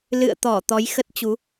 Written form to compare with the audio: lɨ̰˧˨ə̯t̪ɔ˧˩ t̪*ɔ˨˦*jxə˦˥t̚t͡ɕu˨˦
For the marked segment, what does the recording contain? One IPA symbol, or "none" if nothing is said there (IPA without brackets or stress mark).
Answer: ɔ˨˦